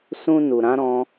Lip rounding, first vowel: rounded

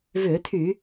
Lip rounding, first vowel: rounded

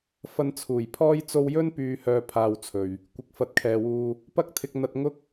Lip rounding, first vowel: unrounded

